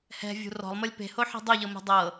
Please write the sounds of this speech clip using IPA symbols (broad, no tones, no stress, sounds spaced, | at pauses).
h ɛ̤ vʲ ṳ r ɔ̤ lˠ m ɤ lʲ p e̤ h o ħ e̤ dˤ o ʎ ɤ m ɛ̤ dˤ ɤ